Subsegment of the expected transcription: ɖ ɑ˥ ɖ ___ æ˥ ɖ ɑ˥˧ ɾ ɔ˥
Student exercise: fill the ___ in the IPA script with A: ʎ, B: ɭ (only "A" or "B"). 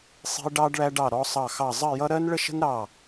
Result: B